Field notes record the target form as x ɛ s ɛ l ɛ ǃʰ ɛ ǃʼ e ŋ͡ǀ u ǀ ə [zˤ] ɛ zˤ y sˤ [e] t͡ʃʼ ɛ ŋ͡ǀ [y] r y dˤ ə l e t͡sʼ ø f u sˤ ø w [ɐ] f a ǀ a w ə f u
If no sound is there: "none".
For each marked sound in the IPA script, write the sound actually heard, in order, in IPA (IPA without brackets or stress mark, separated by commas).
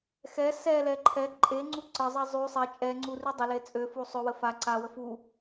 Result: zˤ, e, u, ə